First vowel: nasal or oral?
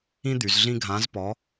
nasal